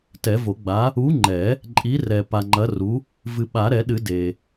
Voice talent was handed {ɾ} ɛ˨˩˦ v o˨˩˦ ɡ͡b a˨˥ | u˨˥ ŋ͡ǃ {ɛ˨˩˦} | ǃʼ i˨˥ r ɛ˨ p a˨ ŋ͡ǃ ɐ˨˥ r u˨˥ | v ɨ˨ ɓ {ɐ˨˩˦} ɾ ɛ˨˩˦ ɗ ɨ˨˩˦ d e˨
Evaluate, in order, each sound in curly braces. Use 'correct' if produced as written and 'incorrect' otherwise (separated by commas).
incorrect, correct, incorrect